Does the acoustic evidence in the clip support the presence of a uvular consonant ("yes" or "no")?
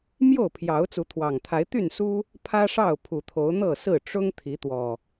no